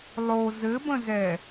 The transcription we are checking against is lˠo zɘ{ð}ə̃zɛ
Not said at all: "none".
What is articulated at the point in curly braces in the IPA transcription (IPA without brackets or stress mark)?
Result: b